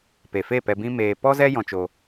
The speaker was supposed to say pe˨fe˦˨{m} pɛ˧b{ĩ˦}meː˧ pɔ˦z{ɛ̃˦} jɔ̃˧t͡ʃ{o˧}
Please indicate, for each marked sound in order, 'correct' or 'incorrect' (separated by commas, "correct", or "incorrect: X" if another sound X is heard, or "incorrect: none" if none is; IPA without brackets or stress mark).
incorrect: none, correct, incorrect: ɛ˦, correct